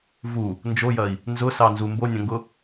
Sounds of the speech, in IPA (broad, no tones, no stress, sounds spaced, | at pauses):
v u | n d͡ʒ o j ɐ i̯ | n z ʊ s ɑ n z u m b o nʲ ɐ̃ ŋ ɡ ʊ